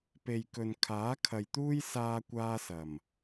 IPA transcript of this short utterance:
p e˨ j k ɵ˨ n kʰ aː˨˥ kʰ ɐ˨ j t̪ uː˥ j s aː˥ kʷ aː˥ s ɐ˨˩ m

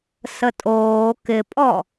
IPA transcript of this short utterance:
s ə tʼ oː k ɪ pʼ ɔ

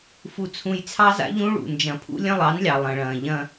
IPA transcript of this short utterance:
f u˦ t͡sʰ ũ˦ j t͡sʰ ɑ˦ z a̰˦ ʎ ũ˦ ɭ ṵ˨ n d͡ʒ ɐ̃˨ pʰ ṵ˦ lʲ ɐ̃˦ lˠ ɑ˨˦ n lʲ ɑ˨ lˠ ɐ̃˨ ɭ ɐ̃ː˨ ʎ ɐ̃˦

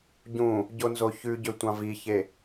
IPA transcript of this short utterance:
ɟ ũ | ɟ o n z o ç ʉ ɟ ø tʷ ɑ̃ v i ç e

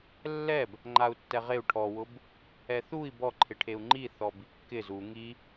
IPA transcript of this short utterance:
lː ɛ b | ŋ͡ǃ a u̯ tː ɛ ʁ e u̯ ʈʰ ɔ w ʊ b | ɛ θ u i̯ b ɔ ǃʰ ɪ ʈʰ e u̯ ŋ͡ǃ i θ ɔ b i kː ɪ z u ŋ i

